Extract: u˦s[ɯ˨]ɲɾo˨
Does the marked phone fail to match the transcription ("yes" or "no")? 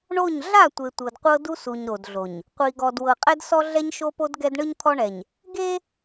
yes